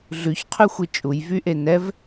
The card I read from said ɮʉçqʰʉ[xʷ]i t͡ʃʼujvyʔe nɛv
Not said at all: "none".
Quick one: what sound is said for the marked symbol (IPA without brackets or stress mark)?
xʷ